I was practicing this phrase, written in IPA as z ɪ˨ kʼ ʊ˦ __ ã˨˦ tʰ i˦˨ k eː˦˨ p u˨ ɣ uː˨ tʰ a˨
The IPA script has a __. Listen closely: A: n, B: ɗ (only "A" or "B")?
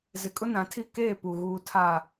A